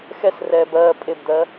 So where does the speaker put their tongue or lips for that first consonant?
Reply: velum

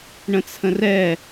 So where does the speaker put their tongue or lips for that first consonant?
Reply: retroflex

